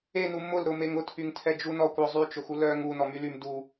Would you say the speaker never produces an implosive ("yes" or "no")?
yes